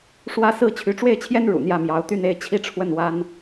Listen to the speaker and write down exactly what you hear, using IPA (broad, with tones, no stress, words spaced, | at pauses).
ʂwä˥˧sɹ̩˥˩ t͡ɕʰy˧˥ʈ͡ʂwe˥˩ɪ̯t͡ɕʰjɛ˥n ɻṵ˨˩n̪jä˥˩mjɑ˧˥ʊ̯ t̪y˥˧ne˥˧ɪ̯ t͡ɕʰi˥˧ʈ͡ʂʰwə˥˩n wa˥n